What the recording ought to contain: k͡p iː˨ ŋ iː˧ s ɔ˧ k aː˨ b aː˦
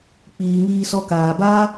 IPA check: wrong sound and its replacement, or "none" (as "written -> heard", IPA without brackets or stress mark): none